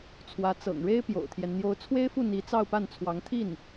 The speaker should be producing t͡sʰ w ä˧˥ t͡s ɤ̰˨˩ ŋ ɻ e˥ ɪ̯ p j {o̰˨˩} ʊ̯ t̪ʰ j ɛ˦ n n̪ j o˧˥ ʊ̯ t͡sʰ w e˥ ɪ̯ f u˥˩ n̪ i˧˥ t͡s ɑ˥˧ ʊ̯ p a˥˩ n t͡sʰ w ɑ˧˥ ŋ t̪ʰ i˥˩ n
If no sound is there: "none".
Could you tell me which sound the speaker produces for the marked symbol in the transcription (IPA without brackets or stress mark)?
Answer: o̰˨˩